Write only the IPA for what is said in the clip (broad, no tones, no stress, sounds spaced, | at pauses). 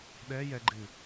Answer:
ɗ ɛ j ɛ ɡ͡ǃ ɨ